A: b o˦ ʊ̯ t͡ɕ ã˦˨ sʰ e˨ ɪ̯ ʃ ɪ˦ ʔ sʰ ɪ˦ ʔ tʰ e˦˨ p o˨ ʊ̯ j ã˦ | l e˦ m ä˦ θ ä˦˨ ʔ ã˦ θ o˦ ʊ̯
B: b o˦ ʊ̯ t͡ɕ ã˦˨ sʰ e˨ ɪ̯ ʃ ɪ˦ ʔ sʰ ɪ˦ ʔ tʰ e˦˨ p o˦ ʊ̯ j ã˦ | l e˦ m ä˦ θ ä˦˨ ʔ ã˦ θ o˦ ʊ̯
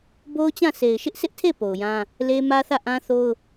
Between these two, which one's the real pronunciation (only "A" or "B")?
A